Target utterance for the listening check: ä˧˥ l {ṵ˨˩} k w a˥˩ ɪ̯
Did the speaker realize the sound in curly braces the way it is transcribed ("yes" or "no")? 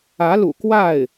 yes